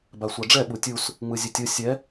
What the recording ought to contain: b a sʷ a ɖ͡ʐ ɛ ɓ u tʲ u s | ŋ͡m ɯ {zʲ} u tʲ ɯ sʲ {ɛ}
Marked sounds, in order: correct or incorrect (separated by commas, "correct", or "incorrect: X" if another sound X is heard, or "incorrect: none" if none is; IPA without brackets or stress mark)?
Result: correct, correct